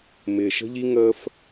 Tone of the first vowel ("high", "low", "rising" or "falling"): low